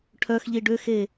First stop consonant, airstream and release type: aspirated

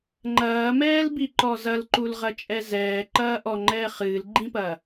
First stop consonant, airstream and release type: click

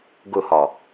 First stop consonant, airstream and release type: plain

